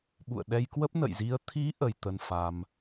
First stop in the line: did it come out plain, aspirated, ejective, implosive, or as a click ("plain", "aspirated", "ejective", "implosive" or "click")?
implosive